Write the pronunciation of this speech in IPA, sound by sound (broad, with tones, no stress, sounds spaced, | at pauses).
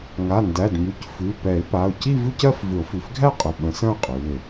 ŋ a˩˧˩ n d æ˩˧˩ d m ʉ˩˧˩ c f ʉ˩˧˩ p ɛ˨˩˦ ɪ̯ p a˩˧˩ ʊ̯ c i˥˧ v ʉ˥˧ c ɜ˥˧ f v ʏ˨˩˦ ʊ̯ f ʉ˩˧˩ f ɡʱ æ˥˧ qʼ ʏ˩˧˩ ɓ ə̃˨˩˦ s ə̃˥˧ ʊ̯ qʼ ʉ˩˧˩ ɪ̯